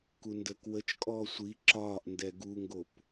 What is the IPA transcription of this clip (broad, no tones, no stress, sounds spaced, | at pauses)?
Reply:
k u n d əː k w ə t͡ʃ kʼ ɔː sʷ i ǁ ɒː ʔ n d ɛ ɡ u ŋ ɡ o p